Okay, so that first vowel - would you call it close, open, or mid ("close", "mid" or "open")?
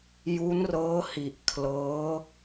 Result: close